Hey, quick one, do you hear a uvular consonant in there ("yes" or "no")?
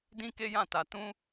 no